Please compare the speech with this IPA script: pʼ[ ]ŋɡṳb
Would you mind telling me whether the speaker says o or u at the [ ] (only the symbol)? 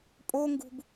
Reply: o